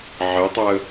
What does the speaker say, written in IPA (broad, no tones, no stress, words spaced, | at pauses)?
ʕɜtˤaə̯